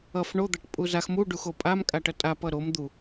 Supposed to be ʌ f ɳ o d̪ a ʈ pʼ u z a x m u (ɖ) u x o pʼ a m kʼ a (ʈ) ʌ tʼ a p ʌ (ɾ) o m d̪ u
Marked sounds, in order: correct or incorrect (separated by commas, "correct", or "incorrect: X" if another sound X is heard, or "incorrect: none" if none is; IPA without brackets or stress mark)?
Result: correct, correct, correct